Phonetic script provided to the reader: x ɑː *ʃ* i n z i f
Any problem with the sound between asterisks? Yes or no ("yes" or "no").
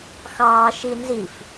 no